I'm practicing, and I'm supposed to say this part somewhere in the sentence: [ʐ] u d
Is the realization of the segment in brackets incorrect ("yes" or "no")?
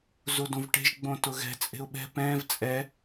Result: yes